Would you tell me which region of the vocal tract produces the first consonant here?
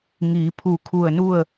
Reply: velum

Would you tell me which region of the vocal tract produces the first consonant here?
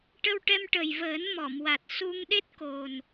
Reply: retroflex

